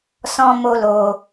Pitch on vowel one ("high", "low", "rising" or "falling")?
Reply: high